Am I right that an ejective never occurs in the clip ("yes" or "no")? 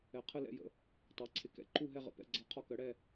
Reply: yes